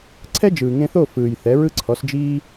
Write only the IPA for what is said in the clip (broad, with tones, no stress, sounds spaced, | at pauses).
ǀʰ ɛ˥ d͡ʒ ɯː˩ ŋ ẽ˧ θ o˥˩ f ɯː˩ j θ ɛ˩˥ ɹ ɯ˥ ǀʰ ɔ˩˥ s d͡ʒ iː˥